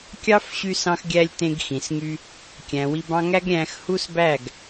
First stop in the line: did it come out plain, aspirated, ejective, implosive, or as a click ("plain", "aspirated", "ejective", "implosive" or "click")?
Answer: plain